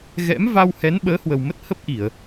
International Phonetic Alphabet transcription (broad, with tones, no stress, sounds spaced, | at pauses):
ɣ ɛ̰˧˥ m v a˧ w h ɛ˨˦ n ɓ əː˨˦ h w ə˨˩ w m ə˦˥ t̚ h ə˦˥ p̚ ʔ i˧˩˨ ə̯